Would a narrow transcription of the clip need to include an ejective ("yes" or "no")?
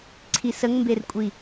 yes